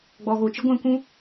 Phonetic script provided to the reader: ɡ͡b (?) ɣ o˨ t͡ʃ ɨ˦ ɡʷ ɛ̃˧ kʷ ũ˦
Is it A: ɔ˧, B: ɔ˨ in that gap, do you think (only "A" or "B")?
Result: B